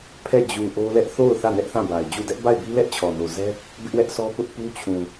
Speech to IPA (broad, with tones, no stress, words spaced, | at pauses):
pʰɛ˦˨ d͡ʑu˨ ʔo˦lɛ˦ʔ θo˦˨ʊ̯ θä˦˨nɛ˦ʔθã˦˨ ba˨ɪ̯d͡ʑu˦˨ dɛ˦ʔba˦˨ɪ̯bi˦lɛ˦ʔ t͡ɕʰɔ˨no˨zɛ˦ | bɪ˦ʔwɛ˦ʔsɔ˦pʊ˦ʔ pu˦t͡ɕʰũ˨